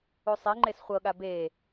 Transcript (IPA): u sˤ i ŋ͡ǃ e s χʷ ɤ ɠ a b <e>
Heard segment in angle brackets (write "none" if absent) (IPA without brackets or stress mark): e